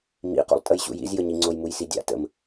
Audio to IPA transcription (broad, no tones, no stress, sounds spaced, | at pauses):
m ḭ q ṵ lˠ tʼ ə j ɕ ṵ j ḭ z j ə ɲ i ŋ͡ǀ o j m u j s i dʲ a̰ t ə̰ m